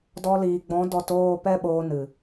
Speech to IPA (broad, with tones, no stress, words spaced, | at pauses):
dɔ˧liː˨ɡ͡bɔ̃˨˦ dɔ˧toː˦˨pɛ˦ ɓoː˧nɨ˨